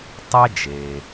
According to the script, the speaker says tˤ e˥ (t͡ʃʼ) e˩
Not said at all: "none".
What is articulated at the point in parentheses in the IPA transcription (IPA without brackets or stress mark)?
d͡ʒ